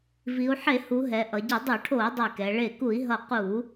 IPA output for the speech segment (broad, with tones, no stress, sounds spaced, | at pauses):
v i˩˧ u̯ ħ e˧˩˧ h u˩˧ ɦ ɛ˩˧ ʔ ʌ˩˧ ɟ i˧˩˧ dˤ u˧˩˧ ʈʰ o˧˩˧ u̯ dˤ i˧˩ k ɛ˩˧ ɭ e˧˩ k u˧˩˧ i̯ ɦ ʌ˧˩ q u˧˩˧